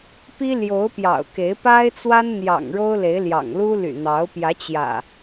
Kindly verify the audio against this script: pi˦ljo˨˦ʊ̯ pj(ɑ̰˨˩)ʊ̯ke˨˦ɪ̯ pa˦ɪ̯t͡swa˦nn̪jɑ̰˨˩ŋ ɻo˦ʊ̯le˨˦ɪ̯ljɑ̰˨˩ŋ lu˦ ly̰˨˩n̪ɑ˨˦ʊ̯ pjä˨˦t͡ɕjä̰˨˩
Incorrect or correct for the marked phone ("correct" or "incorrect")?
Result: correct